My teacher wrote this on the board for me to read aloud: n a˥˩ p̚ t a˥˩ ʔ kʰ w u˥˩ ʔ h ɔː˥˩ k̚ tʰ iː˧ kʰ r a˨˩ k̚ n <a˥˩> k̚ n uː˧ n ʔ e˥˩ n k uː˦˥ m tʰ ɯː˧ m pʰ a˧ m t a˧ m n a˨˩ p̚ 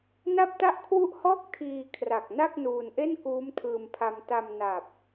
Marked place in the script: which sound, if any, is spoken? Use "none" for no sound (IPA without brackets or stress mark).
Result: a˥˩